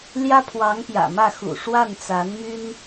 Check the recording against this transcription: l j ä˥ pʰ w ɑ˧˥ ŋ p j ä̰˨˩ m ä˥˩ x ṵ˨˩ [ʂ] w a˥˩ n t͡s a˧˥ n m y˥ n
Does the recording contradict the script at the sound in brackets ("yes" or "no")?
no